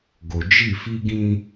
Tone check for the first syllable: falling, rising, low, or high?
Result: low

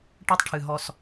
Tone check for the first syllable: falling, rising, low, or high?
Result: high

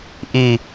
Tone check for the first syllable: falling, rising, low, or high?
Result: falling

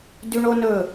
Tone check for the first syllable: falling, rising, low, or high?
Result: high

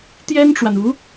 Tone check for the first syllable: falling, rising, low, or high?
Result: high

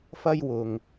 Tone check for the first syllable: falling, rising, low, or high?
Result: high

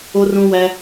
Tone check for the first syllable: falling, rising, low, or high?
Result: high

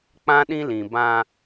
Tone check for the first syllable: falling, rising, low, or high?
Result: high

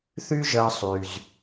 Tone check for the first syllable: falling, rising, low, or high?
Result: high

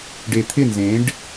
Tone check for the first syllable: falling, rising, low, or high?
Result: low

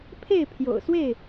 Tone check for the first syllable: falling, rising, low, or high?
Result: falling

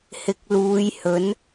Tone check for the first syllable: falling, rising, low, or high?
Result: low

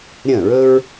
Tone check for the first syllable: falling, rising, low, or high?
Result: falling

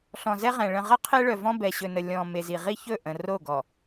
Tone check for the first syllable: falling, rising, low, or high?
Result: low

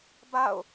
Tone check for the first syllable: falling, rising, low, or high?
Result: falling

